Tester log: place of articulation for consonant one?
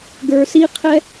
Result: velar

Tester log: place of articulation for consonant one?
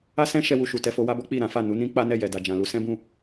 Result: alveolar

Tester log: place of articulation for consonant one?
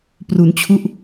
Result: labial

